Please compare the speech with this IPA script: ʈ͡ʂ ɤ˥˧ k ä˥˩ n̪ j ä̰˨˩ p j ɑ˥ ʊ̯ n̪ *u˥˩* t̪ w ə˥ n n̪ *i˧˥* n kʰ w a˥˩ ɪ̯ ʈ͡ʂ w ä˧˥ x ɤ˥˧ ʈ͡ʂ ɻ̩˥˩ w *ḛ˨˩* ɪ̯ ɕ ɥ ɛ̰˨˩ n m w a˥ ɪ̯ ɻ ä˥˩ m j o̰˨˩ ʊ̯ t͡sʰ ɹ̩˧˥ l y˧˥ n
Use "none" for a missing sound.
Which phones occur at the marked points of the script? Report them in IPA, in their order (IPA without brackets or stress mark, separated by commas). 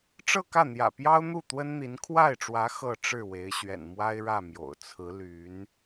u˥˩, i˧˥, e˧˥